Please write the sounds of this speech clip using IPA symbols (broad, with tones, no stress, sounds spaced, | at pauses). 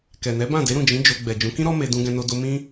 k ɛ˨ n ɛ˨˦ b ã˦˨ d e˨˦ ɾ ũ˦˨ d͡ʒ ĩ˨˦ d͡ʒ o˧ ɡ͡b ɛ˨ d͡ʒ ũ˨˦ k ĩ˦ ɾ ɔ˦ m e˧ d ũ˧ ɡ ɛ̃˧ n o˧ d o˧ m ĩ˦